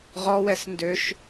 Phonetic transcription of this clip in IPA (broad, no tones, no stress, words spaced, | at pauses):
ʁɔwɛs ndøʃ